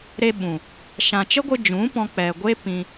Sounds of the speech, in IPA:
ɾ e˧ ɓ ũ˨ | ʃ ã˨ t͡ʃ ə˦ ɡʷ ɨ˧ d͡ʒ ũ˨˦ p ɔ̃˧ k͡p ɛ˨ ɡʷ e˦ p ĩ˧

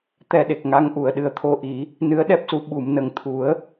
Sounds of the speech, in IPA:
t̪ ɛ˧ ɗ e˨˩ k̚ ŋ a˧˥ ŋ ʔ u˨˩˨ ə̯ ɗ ɨ˨˩ ə̯ t̪ʰ o˧ ʔ i˨˩˦ | n ɨ˧˥ ə̯ ɗ ɛ˦˥ p̚ s u˧ ɓ u˨˩˨ m n ə˨˩ ŋ t̪ʰ u˨˩˦ ə̯

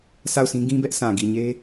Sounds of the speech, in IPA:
sʰ a˦˨ ʊ̯ sʰ ĩ˦ ɡ ĩ˦ b ɛ˦ ʔ s ã˨ ɡ i˨ ɲ e˦

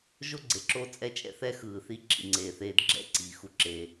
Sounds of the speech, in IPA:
ʒ o˥ ɡ͡ǀ e˩ ǁ o˥ t͡sʼ ɛ˥ t͡ʃʼ ɛ̰˥ θ ɛ˥ x ɯː˩ θ i˧ ǁ ḭ˩ ŋ͡ǀ eː˩ θ eː˧ d ɡ͡ǁ ɛ̰˥ ǀ i˩ x u˩ ǁ e˩

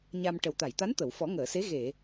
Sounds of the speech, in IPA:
ɲ a˧ m ʈ ə˨˩ w t̪ a˨˩˨ j t̪ a˧˥ n t̪ ə˨˩˨ w f ɔ˨˩˦ ŋ əː˨˩˨ s e˧˥ ɣ e˨˩˨

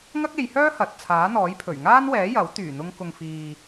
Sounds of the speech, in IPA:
ŋ ɐ˥ k̚ e˨˧ j h œː˥ h ɐ˨ t̚ t͡sʰ aː˨˥ n̪ ɔː˨˥ j pʰ ɵ˨˩ ɥ ŋ aː˥ n w ɛː˨˥ j ɐ˨˥ w t̪ yː˨˩ n̪ ʊ˧ ŋ k ʊ˨ ŋ f iː˨

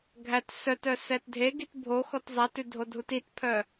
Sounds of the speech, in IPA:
ɡʱ æ t s œ t œ s ɛ t dʱ e ɡ i t bʱ o x ɔ t zˤ æ t ʉ dʱ o dʱ u t i t pʰ œ

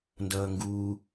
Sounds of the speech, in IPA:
n d ʌː ŋ ɡ uː

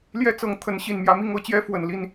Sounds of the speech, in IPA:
l j ɛ˦ t͡s ɤ˨˦ ŋ t̪ʰ ə˨˦ n ɕ i˨˩ n m j ä˨˦ m i˥˨ ŋ ɤ˦ t͡ɕ j ɛ˦ f w ə˨˩ n l i˥˨ n

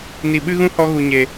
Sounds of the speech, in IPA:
n i˨ ɓ ɨ˦ ɣ ũ˦ h ɔ˧ ɣ u˨ ɲ e˨

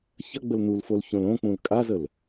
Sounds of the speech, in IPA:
ç ɐ ɡ͡b ə l n u l f o l ç õ l õ k͡p ũ l kʼ a z ə l

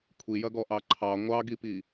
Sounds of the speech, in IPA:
kʷʰ i j ɐ ɡ ɔ ʔ ɑ ǃʰ ɑ ŋʷ ɑ ɡ i p i

